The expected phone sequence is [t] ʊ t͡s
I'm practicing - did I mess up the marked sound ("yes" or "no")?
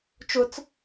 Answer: yes